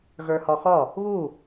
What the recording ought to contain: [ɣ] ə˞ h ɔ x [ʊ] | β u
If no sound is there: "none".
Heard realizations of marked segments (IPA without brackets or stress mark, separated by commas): ɣ, ɔ